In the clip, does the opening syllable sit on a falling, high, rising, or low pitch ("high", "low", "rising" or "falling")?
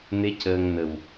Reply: rising